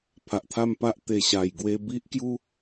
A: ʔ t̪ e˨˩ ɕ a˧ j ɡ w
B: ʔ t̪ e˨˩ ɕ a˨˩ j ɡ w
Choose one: B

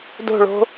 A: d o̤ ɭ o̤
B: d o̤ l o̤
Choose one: A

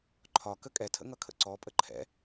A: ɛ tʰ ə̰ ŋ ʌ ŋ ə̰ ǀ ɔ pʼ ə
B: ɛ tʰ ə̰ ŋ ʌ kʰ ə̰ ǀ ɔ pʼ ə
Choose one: B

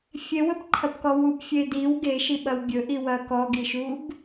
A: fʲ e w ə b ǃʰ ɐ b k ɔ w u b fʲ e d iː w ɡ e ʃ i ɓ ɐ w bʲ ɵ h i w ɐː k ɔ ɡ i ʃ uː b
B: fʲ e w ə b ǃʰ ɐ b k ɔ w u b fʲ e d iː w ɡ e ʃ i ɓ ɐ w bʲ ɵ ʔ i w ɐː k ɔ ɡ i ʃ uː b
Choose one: B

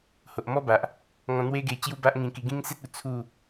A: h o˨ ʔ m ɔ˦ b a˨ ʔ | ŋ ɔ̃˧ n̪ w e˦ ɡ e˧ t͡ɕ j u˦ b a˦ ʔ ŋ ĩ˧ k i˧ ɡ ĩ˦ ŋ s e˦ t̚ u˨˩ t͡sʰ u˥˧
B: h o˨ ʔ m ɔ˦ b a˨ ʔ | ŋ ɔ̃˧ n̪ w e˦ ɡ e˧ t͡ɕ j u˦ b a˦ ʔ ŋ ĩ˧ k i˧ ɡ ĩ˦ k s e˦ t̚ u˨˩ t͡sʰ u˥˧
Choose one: A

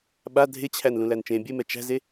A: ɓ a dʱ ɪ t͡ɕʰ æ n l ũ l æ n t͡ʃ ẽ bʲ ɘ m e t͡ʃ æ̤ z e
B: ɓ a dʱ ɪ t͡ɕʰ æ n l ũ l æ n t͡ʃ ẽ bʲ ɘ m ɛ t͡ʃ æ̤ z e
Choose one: B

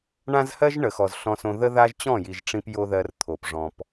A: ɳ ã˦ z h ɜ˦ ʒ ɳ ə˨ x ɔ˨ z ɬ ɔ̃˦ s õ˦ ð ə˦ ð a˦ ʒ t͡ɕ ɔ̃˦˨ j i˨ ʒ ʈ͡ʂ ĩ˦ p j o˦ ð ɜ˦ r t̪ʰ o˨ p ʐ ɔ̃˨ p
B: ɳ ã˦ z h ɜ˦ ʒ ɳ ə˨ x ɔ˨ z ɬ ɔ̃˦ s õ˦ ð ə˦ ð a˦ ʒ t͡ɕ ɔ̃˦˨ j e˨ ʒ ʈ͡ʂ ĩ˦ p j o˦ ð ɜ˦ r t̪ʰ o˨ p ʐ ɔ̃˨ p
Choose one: A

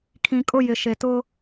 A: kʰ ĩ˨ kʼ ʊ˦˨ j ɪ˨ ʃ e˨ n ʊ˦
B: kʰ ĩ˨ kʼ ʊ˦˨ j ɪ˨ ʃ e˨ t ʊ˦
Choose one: B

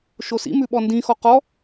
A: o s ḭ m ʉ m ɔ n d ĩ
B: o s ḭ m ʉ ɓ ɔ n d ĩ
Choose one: B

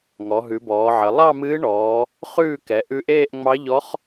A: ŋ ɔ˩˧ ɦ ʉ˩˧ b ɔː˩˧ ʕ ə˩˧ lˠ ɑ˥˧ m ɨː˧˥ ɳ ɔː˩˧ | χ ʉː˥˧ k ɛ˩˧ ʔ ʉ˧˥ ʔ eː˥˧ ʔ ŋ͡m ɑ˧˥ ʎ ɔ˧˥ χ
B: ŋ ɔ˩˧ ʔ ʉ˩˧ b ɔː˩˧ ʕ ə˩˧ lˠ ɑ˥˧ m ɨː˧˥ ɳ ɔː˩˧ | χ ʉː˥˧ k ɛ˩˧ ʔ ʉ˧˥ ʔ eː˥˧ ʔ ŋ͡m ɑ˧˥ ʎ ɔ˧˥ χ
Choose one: A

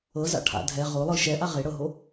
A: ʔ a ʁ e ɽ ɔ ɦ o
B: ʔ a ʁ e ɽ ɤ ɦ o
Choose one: B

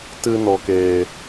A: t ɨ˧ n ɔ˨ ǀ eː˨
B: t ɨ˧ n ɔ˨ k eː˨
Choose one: B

